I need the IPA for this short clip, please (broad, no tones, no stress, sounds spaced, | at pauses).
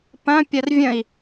p ɐ̃ pʲ ɐ r vʲ ə̃ i̯